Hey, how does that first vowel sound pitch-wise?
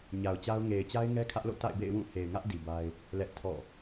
low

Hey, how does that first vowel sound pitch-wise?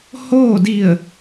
falling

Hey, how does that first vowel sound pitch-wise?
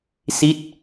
falling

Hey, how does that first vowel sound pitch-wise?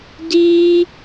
high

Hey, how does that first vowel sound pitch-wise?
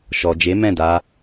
low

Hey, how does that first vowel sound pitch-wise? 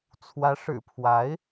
rising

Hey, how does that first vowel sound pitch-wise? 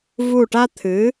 falling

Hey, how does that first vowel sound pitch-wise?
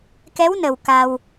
rising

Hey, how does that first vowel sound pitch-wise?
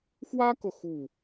high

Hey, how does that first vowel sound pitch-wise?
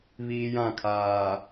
high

